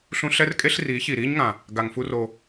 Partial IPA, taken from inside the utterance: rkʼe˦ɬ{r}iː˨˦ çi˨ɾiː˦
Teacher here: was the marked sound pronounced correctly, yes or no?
yes